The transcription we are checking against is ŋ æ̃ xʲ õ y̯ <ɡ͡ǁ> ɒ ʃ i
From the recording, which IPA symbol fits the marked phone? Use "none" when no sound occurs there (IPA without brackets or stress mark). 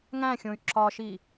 ǁ